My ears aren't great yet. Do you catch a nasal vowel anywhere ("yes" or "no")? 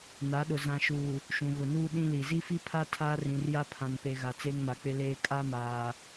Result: yes